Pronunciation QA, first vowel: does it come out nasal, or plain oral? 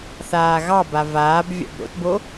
oral